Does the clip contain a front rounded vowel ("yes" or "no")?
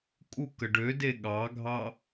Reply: yes